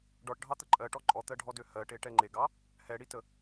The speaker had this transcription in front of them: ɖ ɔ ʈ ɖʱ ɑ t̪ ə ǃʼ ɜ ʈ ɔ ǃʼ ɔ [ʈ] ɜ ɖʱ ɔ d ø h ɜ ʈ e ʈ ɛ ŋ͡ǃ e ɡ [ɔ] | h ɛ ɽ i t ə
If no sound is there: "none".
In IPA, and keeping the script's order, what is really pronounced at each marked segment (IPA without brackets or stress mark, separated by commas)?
t̪, ɑ